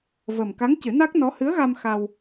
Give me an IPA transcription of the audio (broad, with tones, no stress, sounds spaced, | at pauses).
v ə˨˩ m k a˧˥ ŋ c ɨ˨˩˦ n a˦˥ k̚ n ɔ˧˥ h ɨ˧˥ ə̯ ɣ a˧ m x a˧ w